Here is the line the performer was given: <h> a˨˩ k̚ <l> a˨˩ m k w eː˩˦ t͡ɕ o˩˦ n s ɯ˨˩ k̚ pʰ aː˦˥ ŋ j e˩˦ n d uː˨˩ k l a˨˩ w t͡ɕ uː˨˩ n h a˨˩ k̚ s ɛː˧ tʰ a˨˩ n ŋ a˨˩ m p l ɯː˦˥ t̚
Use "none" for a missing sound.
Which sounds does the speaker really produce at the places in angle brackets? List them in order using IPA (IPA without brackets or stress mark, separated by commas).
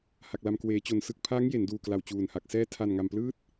h, l